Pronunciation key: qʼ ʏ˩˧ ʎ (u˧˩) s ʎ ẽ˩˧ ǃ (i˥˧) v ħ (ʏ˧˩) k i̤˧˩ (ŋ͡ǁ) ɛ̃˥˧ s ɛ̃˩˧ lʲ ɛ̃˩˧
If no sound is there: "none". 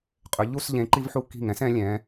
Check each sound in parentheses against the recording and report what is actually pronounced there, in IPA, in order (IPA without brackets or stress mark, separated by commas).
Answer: u˥˧, i˧, u˧˩, ŋ